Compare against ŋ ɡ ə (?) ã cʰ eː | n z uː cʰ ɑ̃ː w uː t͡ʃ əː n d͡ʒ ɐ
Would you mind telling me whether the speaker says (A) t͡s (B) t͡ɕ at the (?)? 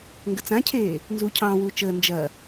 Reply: A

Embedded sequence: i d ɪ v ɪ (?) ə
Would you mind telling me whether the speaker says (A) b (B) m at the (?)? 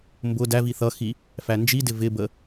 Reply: A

